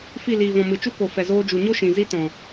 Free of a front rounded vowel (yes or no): yes